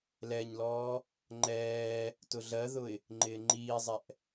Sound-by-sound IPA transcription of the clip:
l ɛ ɲ l ɔː | ŋ͡ǃ ɛː | t ʊ ɮ ɜ ð ʊ ɪ̯ | ŋ͡ǃ ɪː ŋ͡ǃ iː zˤ ɛ ʔ

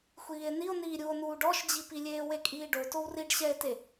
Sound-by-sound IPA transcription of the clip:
xʷ iː e̯ n i o̯ n iː ɾʲ u o̯ n uː ɖ ɔ ʃ d͡ʑ i p i lʲ eː w e kʼ iː ɖ o t o w r i ɖ ɕ ɛ e̯ t e

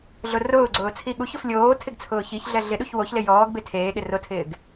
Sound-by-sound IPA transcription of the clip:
ɮ ʊ r ʊː ɡ͡ǀ ʊː t͡sʰ i ɠ u ç ʊ f lʲ oː tʰ ɪ ɡ t͡sʰ ʊː ç i ç ɮ ɛ ɮ ɪ ɗ u ç w o ç l ɪ j ɔː ɡ b e tʰ eː ɠ ɪ r ʊ tʰ ɪː ɡ

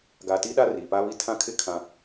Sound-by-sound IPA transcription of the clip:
ɡ a˨ t i˦ ɗ a˦ r iː˨ p a˦ β i˦ tʰ ã˦ kʰ ɪ˦ kʰ ã˦

